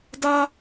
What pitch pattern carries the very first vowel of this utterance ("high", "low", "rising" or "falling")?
high